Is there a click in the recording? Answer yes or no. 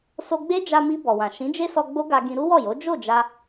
no